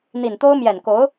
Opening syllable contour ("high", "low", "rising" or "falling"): low